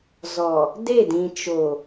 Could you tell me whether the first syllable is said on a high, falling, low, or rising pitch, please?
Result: low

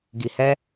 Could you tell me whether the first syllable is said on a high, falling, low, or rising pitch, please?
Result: low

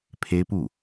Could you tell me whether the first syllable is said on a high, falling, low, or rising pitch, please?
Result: high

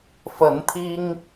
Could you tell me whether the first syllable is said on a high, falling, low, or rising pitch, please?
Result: rising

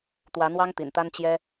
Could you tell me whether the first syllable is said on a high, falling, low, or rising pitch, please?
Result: rising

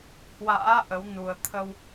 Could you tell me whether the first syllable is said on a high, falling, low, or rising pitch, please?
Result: rising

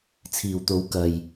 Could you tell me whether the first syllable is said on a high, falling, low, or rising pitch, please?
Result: low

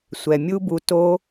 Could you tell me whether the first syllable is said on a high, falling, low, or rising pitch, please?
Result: low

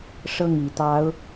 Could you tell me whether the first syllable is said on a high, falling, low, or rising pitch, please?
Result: falling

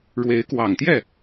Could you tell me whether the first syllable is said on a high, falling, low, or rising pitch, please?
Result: rising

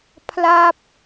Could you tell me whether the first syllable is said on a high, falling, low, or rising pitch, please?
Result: falling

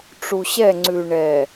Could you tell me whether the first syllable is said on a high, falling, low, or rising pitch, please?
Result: low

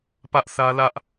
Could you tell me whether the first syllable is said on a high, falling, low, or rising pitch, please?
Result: high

